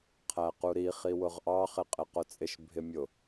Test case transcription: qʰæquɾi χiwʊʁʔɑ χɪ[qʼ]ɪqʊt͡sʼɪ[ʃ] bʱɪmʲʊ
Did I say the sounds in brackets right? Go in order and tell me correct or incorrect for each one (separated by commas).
correct, correct